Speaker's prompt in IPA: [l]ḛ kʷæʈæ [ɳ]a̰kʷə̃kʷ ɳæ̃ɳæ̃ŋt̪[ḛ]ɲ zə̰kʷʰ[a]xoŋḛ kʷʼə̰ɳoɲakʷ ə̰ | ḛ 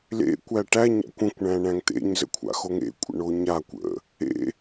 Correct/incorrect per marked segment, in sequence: correct, incorrect: ɲ, correct, incorrect: a̰

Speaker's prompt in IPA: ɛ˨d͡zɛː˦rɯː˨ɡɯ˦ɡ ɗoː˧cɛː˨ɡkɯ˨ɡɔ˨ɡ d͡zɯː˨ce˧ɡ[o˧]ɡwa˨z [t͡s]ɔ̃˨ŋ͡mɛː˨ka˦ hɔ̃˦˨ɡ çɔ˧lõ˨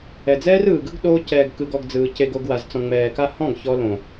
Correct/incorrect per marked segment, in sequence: correct, correct

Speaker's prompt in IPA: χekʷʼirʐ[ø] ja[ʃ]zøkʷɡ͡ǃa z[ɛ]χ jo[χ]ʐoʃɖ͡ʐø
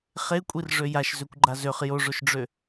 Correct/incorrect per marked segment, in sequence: correct, correct, incorrect: ø, incorrect: none

